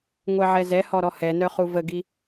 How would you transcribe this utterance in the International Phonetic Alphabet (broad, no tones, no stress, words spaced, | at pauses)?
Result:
ŋʷɛʕɛzɛhɔ ɾɔhɛnœ χuvəɡi